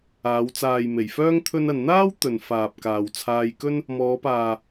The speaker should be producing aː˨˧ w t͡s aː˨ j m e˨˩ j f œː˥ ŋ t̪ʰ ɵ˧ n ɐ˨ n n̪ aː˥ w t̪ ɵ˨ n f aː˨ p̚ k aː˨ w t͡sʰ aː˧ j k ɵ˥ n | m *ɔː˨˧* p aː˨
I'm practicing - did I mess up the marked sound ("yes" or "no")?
no